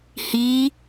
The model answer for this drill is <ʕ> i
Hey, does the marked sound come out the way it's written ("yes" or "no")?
no